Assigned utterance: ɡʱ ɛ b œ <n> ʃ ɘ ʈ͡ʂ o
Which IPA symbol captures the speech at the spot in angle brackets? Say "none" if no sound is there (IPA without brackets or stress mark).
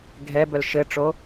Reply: l